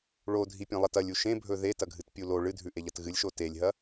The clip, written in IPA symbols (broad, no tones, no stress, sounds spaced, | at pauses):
ɭ o dʱ i pʲ ẽ lˠ ɐ t ɐ lʲ u ʃ ẽ bʱ ɵ ð e t ɐ ɡʱ ɨ t pʲ u l o ɭ ɨ dʱ ʉ ʔ e ʎ ɐ t ɣ ɨ lʲ ʃ o t e lʲ ɦ ɐ